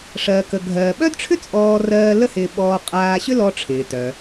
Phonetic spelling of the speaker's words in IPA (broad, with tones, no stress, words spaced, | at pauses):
ʂɜ˧kə˧ ɡʱɜː˧ ɓœ˥dʈ͡ʂʰʏ˥t͡sʼɔː˧rɜː˧ lə˥hɪː˧ɓɔː˧ qʼaː˧ɕʏ˥lɔ˧ ʈ͡ʂʰɪː˩tœ˩